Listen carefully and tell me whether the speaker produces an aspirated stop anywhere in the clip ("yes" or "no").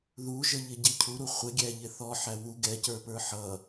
yes